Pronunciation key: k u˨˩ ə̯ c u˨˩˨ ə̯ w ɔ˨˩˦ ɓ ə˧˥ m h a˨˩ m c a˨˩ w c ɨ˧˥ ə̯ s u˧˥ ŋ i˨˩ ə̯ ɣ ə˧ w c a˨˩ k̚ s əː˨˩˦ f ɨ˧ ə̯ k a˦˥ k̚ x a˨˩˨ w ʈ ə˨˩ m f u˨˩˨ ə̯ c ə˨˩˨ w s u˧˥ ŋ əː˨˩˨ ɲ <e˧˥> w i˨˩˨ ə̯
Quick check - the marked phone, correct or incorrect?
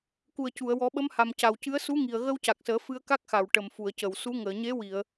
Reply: correct